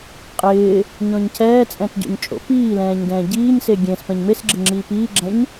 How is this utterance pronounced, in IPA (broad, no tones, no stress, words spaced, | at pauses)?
qʼɪː | ɲɔ̃ɲcʰɛːt͡sʼɛ̃t ɟo̰ɲt͡ʃʼo̰piːlɛ̃ːɲ dɛ̃ːɟiːɲse ɡʲẽs pɛ̃ɲmesɡ͡ǁɪ ŋ͡ǁiːpiːɡ͡ǁɛ̃ɲ